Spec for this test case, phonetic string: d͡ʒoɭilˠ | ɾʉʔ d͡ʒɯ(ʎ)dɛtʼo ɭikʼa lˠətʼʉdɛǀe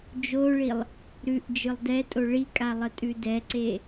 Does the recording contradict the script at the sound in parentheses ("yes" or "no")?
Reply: yes